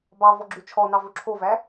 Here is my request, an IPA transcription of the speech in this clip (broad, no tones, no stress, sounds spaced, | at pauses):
b ɑ v ɔ ɡ͡ǁ ʉ t͡ʃʰ ɔ n ɑ v ɵ ǁʰ o v æ